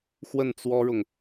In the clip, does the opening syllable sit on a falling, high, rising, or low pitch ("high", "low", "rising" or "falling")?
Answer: falling